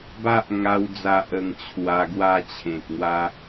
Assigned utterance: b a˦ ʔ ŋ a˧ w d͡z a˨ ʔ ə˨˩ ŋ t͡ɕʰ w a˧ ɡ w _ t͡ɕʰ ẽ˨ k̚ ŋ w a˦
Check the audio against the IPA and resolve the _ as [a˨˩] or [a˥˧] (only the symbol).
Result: a˥˧